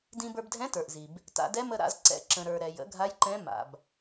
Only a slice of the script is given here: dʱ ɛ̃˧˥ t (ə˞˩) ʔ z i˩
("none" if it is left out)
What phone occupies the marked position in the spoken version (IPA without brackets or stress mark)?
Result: ə˞˩